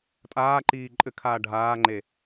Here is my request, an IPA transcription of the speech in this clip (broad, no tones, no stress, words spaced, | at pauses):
tʼaːǃiː ǃʼɘkʰaː ɖʱaːŋ͡ǃe